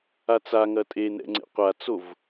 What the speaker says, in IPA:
a t͡s a ŋ ɐ tʼ e n ɛ̰ ŋ͡ǀ ḛ qʷ a t͡s o v

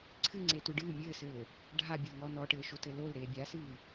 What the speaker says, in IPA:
ǀʰ ɨ ŋ͡ǀ e t u ɖ ɨː mʲ ɘː s ɘː | ɖʱ a bʲ ɘ l ŋ ɔ n ɔ ʈ ɘː ʃ o t ɘ l o l ɾ eː bʲ a s ɨː

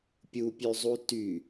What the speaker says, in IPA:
pʲ u pʲ ʉ zˤ u t y

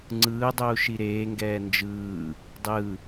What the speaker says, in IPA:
ŋ͡ǀ ɯː dˤ uː ʃ i ɾ eː ŋ ɡ ɛː n d͡ʒ ɯː | dˤ ɯ

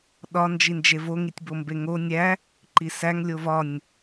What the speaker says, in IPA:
ɗ ɒ n d͡ʒ i n d͡ʒ e v o ŋ i tʲ b o m b e ŋ o nʲ æ | ǃ i s æ ŋ lʲ o v ɒ nʲ

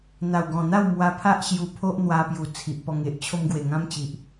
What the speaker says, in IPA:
n̪ a˨˩ w ɡ ɔ̃˨˩ n̪ a˥˧ w m w a˧ pʰ a˦ ʔ ɕ j u˧ pʰ o˦ ʔ n̪ w a˧ p j u˨˩ t͡sʰ i˨ ʔ p ɔ˧ ŋ e˨ ʔ t͡ɕʰ o˧ m ɡ w e˨˩ ŋ ã˦ m t͡ɕ i˨ ʔ

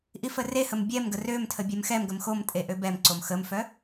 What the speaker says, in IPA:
ʔ i f ə r e h ə m bʲ ɛ m ɡ ə r ø m tʰ ə bʲ ɛ m x ɛ m ɡ ə m x o m tʼ e ʔ ø b ɛ m ǀ o m x ə m f œ

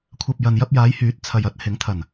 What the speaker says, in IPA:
kʷʰ ɐ˨ p̚ j ɐ˨ n j ɐ˧ p̚ j aː˨˧ j h yː˨˥ t̚ t͡sʰ ɐ˨ j ɐ˨˥ t̚ h ɪ˨˥ ŋ t̪ʰ ɐ˨˩ n

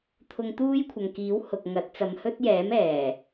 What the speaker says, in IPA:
t̪ʰ ʊ˧ ŋ t̪ uː˥ j kʷʰ ɐ˨ ŋ k iː˨˥ w h ʊ˨ k̚ ŋ ɐ˨˥ t̚ t͡s ɐ˨˧ m h ɵ˥ t̚ j ɛː˨˥ m ɛː˨˩

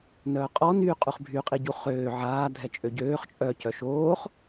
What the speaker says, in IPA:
n œː qʼ ɔ n y qʼ u χ bʱ y qʼ i ɟ u χ øː ʕ aː dʱ ɛ t͡ʃʼ ø ɟ øː χ t͡ʃʼ œ c œ ʃ oː χ

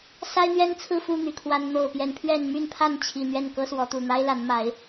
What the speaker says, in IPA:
s a˦ ɪ̯ n̪ ɥ ɛ˦ n t͡sʰ ɹ̩˥˨ f u˥˨ n̪ y˨˩ kʰ w a˨˦ n n̪ o˨˩ ʊ̯ p j ɛ˨˦ n pʰ ɥ ɛ˥˨ n m y˥˨ n pʰ a˥˨ n t͡ɕʰ i˨˩ n̪ ɥ ɛ˥˨ n k ɤ˦ s w ɔ˨˦ t̪ u˨˩ n̪ a˦ ɪ̯ l a˨˦ n m a˨˦ ɪ̯

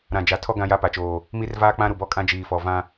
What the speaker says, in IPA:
ɾ ã˨ d͡ʒ a˨ tʰ ɔ˦ ɡ ã˦ j a˦ p a˨ t͡ʃ oː˨ | m i˦ r v aː˦ k͡p ã˦ ɾ u˨ b ɔ˦ kʼ ã˦ d͡ʒ iː˨ f ɔ˨ v ã˦

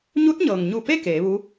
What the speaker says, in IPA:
ɲ u˧˥ t̚ ɲ ɤː˩ ŋ ɲ u˧˩ p e˥˨ k eː˩˧ ʋ u˧˥

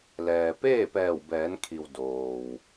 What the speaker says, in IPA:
l ɛː˩ p eː˥˨ p ɛː˧˩ w b ɛː˩˧ n kʰ i˩ w d oː˩ w

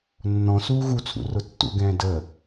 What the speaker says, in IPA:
nː ɔ̃ s uː ɣ u t͡sʰ ṵ r ʊ tː ṵ ɡ ɛ̃ː d ə

